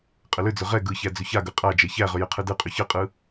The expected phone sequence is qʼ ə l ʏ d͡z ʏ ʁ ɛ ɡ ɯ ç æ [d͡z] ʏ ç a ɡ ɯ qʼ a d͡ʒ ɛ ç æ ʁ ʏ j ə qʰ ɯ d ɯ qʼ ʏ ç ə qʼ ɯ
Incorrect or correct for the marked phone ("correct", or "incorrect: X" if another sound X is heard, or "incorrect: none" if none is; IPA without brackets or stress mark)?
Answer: correct